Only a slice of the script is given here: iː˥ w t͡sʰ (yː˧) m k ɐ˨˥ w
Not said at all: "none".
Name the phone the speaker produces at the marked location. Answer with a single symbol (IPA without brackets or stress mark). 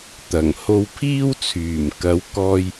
yː˨˩